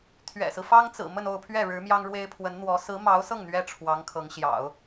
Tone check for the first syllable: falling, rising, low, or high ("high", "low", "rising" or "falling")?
low